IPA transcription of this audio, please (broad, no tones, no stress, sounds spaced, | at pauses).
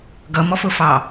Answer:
ɡ ʌ m ɔ f ʊ f ɑ